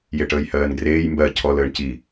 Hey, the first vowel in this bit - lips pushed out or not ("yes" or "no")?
no